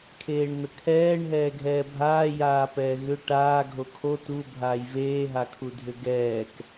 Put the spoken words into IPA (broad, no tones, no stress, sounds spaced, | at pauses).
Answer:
kʰ eː ɳ n̪ ə kʰ ɛː ɳ ɦ ɛː ɡʱ ɛː bʱ aː j aː p ɛː ɣ ʏ ʈ aː ɡʱ o kʰ o t u bʱ aː j v eː ɦ a kʰ u dʱ ʏ ɡ ɛː k